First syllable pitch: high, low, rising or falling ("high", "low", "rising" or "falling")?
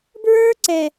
high